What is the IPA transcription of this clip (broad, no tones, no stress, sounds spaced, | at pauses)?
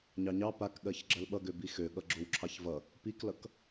ɲ ɑ ɲ ɑ p a k ɠ ɜ ç ɡ͡ǁ ɜ l ɓ ʌ ɡ ø b i x ø ɠ ʌ ɡ͡ǁ o w ǁʰ ɑ ç v ʌ | p i k l ʌ k